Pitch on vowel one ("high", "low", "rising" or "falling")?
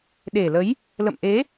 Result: low